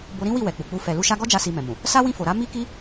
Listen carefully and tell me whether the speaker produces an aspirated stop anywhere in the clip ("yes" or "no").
no